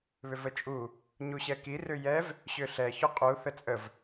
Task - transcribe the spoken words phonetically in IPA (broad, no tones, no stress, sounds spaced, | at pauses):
β ʏ v ə t͡ʃʼ u | ɲ u ɕ ɛ k i r ʏ j ɛ v | ɕ ʏ ɬ ɛ ç ʏ qʼ u θ ə t͡sʼ ə v